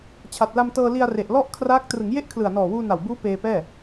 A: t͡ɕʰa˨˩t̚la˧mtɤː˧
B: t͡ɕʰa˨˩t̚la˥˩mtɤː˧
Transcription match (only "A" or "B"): A